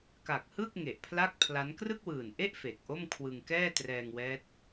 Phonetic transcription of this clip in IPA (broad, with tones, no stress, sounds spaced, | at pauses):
k a˨˩ k̚ h ɯ˥˩ k̚ ŋ e˨˩ ʔ pʰ l a˥˩ k̚ pʰ l a˦˥ n k r ɯ˥˩ k̚ w ɯː˨˩ n ʔ e˥˩ ʔ f e˨˩ k̚ ʔ o˥˩ m kʰ w ɯ˧ ŋ k ɛː˥˩ t r ɛː˧ ŋ w ɛː˦˥ t̚